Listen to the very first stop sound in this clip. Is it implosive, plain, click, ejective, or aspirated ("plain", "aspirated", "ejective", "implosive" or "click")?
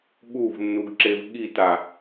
implosive